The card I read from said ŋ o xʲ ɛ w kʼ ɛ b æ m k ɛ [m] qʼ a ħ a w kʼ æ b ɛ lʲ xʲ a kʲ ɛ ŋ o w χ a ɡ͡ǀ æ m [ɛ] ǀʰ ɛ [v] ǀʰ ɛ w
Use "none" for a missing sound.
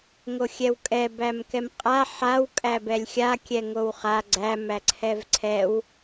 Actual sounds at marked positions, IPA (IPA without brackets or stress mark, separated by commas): m, æ, v